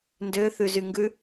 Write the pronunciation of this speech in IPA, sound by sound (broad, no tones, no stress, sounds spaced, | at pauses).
n d ø θ ʉ z y ŋ ɡ ʉ